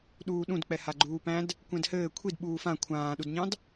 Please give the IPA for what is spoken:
ɗ uː ɗ ũ d k͡p ɛ h a ɡ͡ǃ uː p æ̃ d | kʷ ɛ̃ d h ɘː kʷʰ i d ɓ uː f ã kʷʰ ãː ɗ u d ɲ ɑ̃ d

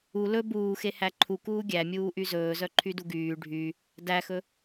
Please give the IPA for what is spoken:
u l ɵ b uː x e h æ ǃʰ u k uː ɡʲ æ mʲ uː ʔ y z ɵː z œ ǃʰ y d u ɡ yː ɖʱ y | d æ x ɵ

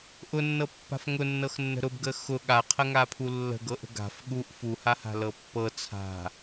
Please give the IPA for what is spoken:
ʔ ʊ nː ɤ pː a̤ f ŋ ʊ nː ɤ x nː ə̤ ɾ ʊ b ɡ ə x ʊ ɠ a qʰ ə ŋ a pʰ u lː ə̤ ɡ ɤ ʔ ə̤ ɡ a̤ f ɠ u ʔ f u h a h a̤ l ɤ pː ɤ t͡sʰ a̤

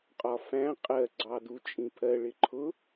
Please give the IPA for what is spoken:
qʼ ɒ f æ̃ qʼ ɜ ɡ͡ǀ ɑ d u t͡ʃʼ ĩ pʰ ɜ ɭ ɪ ǃʰ ʊ

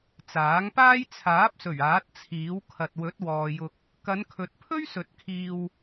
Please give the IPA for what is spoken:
t͡s aː˨˥ ŋ p aː˥ j t͡sʰ aː˨˥ p̚ s ɵ˨˩ ɥ aː˨˥ t̚ t͡sʰ iː˨˥ w kʰ ɐ˨ t̚ w ɵ˨˥ t̚ w ɔː˨ j ʊ˧ k̚ | k ɐ˨˧ n kʰ ɵ˨ t̚ pʰ ɵ˥ ɥ s ɵ˨˥ t̚ kʰ iː˧ w

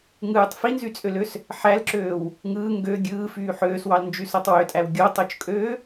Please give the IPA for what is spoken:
ŋ ɯː tˤ f i n z y t͡sʼ ø l ø s | ħ æ l ǁ øː w | ŋ ɯː ŋ ɡ ø ɡʲ ɯː f yː ħ øː s w ɑ l n d͡ʒ y s o tˤ w ø tʼ æ w ɡʲ o tˤ o t͡ʃ kʼ øː

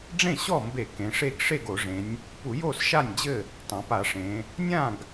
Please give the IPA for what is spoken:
ɖ͡ʐ ẽ˥˩ ɕ ɔ˥˩ m b e˧˩˧ k ẽ˩˧ ʂ e˥˩ ɡ ʂ e˥˩ ɡ o˧˩˧ ʐ ẽ˩˧ nʲ | p u˧˩˧ j o˥˩ s ʃ a˥˩ nʲ d͡ʑ ɘ˥˩ | tˤ ã˩˧ p a˧˩˧ ʂ ẽ˩˧ | nʲ ã˥˩ ɡ

